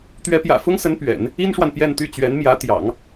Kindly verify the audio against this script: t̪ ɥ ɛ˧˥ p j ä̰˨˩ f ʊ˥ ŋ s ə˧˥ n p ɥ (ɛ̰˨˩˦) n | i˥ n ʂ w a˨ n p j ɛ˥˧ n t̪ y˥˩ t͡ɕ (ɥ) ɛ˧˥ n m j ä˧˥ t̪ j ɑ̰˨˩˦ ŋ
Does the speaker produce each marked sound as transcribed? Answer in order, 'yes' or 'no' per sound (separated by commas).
yes, yes